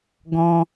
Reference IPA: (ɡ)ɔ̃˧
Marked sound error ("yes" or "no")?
no